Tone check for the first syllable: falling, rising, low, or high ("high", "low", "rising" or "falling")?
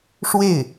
falling